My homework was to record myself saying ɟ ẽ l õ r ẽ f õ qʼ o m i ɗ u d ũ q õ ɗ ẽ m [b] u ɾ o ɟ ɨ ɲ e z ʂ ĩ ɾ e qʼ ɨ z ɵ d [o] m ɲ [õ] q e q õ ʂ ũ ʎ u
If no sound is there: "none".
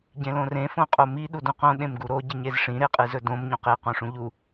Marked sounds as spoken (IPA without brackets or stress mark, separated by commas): ɡ, õ, ũ